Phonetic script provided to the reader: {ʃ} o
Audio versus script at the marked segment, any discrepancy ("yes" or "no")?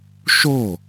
no